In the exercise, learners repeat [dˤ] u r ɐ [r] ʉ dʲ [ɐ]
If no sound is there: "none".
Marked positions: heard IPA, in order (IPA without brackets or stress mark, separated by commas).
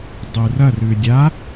dˤ, r, a